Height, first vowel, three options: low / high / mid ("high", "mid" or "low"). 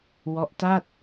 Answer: mid